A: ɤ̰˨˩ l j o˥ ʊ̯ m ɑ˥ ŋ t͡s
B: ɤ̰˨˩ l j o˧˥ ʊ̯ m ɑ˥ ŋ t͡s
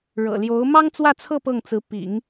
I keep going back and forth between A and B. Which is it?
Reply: B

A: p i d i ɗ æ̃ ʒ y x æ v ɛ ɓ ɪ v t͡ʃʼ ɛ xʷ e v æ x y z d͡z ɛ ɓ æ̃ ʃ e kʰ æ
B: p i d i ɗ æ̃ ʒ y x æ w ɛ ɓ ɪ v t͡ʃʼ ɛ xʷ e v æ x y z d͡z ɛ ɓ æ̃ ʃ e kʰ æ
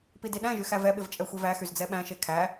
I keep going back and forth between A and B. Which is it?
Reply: A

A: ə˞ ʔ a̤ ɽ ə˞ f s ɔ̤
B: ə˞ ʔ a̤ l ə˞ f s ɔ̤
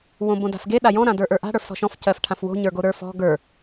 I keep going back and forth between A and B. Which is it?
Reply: A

